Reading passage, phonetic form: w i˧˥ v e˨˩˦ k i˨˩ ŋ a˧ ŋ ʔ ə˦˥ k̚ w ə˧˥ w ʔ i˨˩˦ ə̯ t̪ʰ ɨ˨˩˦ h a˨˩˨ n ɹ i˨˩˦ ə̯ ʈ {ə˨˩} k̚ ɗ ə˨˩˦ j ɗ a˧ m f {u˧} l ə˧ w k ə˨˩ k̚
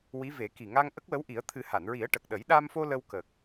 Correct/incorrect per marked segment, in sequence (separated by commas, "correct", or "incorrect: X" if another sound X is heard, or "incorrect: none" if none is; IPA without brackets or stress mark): correct, incorrect: o˧